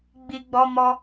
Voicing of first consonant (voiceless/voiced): voiced